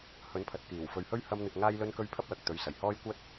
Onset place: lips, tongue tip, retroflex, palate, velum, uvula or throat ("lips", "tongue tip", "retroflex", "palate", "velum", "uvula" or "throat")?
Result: throat